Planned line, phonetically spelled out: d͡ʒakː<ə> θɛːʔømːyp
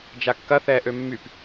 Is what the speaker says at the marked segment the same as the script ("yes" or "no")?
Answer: no